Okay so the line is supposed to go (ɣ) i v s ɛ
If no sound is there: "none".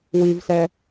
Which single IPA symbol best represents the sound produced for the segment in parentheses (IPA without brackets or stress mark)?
w